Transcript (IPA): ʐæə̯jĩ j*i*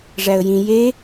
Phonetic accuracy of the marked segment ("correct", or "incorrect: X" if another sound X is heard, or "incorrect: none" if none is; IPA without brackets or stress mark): incorrect: e